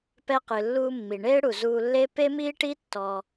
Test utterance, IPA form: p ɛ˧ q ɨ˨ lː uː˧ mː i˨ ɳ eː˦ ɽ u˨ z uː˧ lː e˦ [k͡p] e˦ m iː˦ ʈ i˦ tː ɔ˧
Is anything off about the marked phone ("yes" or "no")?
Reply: yes